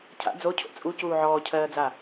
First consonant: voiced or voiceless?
voiceless